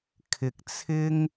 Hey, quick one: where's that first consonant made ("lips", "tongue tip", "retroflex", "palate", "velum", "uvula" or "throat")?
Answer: velum